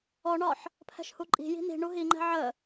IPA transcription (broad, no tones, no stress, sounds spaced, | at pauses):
ɔ ɳ ɒ ħ | pʰ ɛ̤ ʃ h u ǃʼ i̤ j i̤ n i̤ ɳ u ɦ i ŋ͡ǃ ɛ̤ ʕ ə